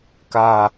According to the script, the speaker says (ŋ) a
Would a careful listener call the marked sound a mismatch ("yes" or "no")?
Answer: yes